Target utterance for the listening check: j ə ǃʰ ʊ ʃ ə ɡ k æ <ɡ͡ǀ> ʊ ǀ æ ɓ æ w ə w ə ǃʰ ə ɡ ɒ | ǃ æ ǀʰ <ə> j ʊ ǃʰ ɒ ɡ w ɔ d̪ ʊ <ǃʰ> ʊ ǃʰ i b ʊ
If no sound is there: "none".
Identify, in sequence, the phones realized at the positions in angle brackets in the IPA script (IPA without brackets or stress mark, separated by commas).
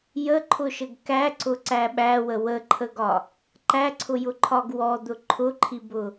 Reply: ǀ, ʊ, ǃʰ